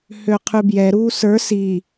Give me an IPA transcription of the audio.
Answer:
h ø qʰ ʉ b j ɛ ɾ uː s ə˞ s i

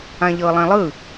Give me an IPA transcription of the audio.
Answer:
ã ʎ ɤ lˠ ẽ lˠ ɯ

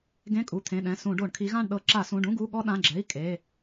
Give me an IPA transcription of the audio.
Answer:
ɡ ẽ˧˥˧ kʼ u˩˧˩ t̪ʰ ẽ˩˧˩ ɗ ɛ̃˩˧˩ s ũ˧˩˧ ɖ o˧˩˧ ɳ kʰ i˨˦ ɣ ã˥˧ ɳ ɗ ɤ˧˩˧ ǁ a˧˩˧ s ũ˩˧˩ ɖ ũ˧˥˧ ɡ u˧˥˧ ɠ ɔ˥ ɗ ã˩˧˩ ɡ͡ǁ ɛ˩˧˩ i̯ kʼ e˩˧˩

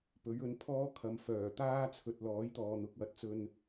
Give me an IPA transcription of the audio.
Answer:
p ɵ˨˥ ɥ ɵ˨˧ n pʰ ɔː˥ kʰ ɐ˨ m f œː˨˩ t̪ aː˥ t͡sʰ ɵ˨ t̚ l ɔː˨˥ j t̪ ɔː˨ n̪ ʊ˨˥ k̚ w ɐ˨ t̚ t͡s ɵ˧ n

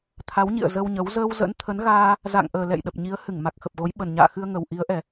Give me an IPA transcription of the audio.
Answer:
t̪ʰ a˨˦ w ɲ ḭ˧˨ ə̯ z ə˧ w ɲ ə˨˦ w z əː˧ w z ə̰˧˥ n t̪ʰ ə˨˦ n ɣ aː˧ | z a̰˧˨ ŋ ʔ əː˨˩ l ɛ̰˧˨ j ɗ ə˨˩ p̚ ɲ i˨˦ ə̯ h ɨ˧˩ ŋ m a˨˩ k̚ x ə˨˩ p̚ ɣ o˨˦ j ɓ ə˨˩ n ɲ a̰ː˧˨ x ɨ˧ ə̯ ŋ ə˨˩ w ʔ i˨˦ ə̯ ʔ ɛ˨˩

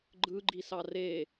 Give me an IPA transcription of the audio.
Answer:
ɡ͡ǃ ɯ ɡ͡ǃ i s ɑ r e

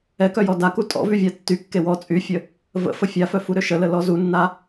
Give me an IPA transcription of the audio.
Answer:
ɛ k œ j ɔ d a k u tʼ ɔ̰ v y vʲ a tː y kː e w ɔ t͡sʼ y fʲ ə | v ə̰ f ə fʲ a f œ f u ɾ ø ʃ ə l ə l ɔ z u nː a

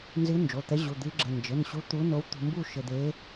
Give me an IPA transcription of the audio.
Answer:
n z ɨ˧˥ n d͡ʒ o˩˧˩ t̪ ɛ˧˥ ʑ u˩˧˩ d̪ ɨ˧˥ ɡ͡ǁ ɘ˩˧˩ n d͡ʒ ɘ˩˧˩ n ɕ u˧˥ t̪ u˧˥ n o˧˥ w t̪ ṳ˧ m b u˥˧ ʃ ɘ˧ d̪ e˧˥

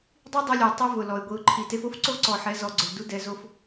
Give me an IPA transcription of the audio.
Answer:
dˤ i˦ dˤ ɪ˧ lʲ ʊ˨ ɪ̯ tˤ e˦ v ʊ˨ l ɔ˨ ɪ̯ ɡʷ i˨ ʊ̯ ǃʰ i˨ t e˧ f o˦ f ǀ o˦ ǀ ɔ˨ ħ ɛ˨˦ z ɔ˨ ɡ͡ǀ ʊ˨ l d u˦ d ɛ˧ z o˦ f

